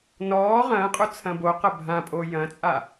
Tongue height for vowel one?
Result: mid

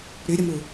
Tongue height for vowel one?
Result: high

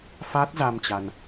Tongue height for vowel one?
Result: low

